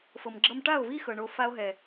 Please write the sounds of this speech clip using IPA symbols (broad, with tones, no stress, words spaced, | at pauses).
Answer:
fɤ˨mɡ͡ǁɤ˧mʈa˦˨o̯vi˦ xɤ˨ɳo˧ fa˧o̯ɦɛ˨